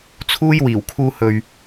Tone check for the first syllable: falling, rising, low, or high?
high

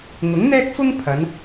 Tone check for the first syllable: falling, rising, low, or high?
rising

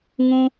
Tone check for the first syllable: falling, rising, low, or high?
high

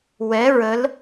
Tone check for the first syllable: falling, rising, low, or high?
rising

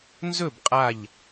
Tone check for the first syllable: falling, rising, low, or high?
falling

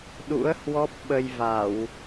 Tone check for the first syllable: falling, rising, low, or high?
rising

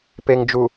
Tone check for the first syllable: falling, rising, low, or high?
low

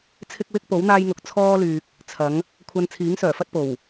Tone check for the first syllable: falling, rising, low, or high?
high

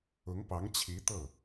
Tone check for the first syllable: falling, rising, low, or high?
rising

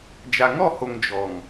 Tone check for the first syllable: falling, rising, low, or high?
low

